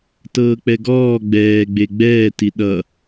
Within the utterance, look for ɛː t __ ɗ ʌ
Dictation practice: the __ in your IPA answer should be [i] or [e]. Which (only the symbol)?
i